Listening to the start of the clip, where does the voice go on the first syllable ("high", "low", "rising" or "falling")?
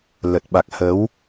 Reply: low